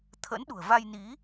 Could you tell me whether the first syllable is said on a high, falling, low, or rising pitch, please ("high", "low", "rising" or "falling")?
rising